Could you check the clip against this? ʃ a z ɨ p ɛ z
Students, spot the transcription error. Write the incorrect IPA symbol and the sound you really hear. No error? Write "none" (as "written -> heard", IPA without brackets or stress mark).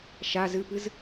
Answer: ɛ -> ɨ